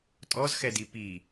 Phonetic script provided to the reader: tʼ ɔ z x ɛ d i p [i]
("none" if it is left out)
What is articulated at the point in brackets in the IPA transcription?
i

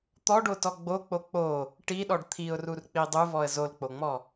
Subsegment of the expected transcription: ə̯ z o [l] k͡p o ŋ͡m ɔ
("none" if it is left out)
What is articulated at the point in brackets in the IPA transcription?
l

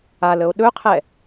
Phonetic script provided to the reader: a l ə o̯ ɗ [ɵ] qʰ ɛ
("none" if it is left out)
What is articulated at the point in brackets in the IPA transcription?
ɵ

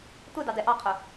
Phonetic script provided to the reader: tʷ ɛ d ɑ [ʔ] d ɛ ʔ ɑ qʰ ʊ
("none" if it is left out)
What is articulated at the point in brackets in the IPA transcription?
none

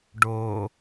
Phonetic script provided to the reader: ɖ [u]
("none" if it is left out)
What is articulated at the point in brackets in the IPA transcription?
o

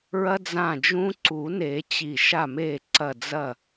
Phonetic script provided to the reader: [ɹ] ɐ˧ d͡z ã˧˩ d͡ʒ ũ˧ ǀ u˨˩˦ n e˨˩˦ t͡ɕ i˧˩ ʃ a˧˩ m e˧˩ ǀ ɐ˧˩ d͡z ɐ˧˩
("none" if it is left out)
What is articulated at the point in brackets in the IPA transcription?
ɹ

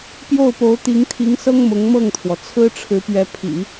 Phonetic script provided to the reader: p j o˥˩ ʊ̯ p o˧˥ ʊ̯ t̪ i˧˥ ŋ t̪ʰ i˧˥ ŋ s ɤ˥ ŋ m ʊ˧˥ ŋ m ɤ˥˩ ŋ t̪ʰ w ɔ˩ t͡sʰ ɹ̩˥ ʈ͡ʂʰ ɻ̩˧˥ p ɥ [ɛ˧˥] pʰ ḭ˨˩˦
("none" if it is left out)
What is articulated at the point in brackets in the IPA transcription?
ɛ˧˥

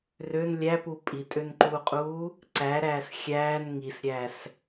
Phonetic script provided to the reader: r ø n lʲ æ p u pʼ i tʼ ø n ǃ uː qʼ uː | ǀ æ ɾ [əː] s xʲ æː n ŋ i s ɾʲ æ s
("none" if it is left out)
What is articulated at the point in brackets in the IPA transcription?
æː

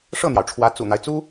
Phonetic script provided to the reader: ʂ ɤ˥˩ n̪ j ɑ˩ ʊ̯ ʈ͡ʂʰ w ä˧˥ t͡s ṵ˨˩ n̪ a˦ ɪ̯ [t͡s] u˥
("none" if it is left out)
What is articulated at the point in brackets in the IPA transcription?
t͡s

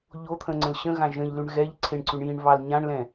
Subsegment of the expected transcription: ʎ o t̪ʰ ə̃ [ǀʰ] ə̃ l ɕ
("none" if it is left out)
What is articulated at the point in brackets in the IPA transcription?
ŋ͡ǀ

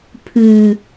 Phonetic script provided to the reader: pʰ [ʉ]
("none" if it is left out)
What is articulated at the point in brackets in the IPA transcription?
ʉ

